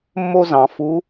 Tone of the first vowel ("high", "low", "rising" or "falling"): high